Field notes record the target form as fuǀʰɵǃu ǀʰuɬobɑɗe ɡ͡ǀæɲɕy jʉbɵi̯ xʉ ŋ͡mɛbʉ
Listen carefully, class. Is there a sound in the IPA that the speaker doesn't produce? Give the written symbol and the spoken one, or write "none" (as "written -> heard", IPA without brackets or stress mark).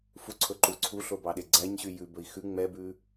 none